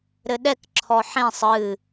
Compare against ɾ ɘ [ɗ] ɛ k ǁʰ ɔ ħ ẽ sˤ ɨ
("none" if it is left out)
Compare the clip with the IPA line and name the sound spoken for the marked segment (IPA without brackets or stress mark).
ɗ